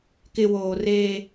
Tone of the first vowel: low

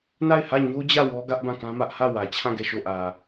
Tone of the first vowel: falling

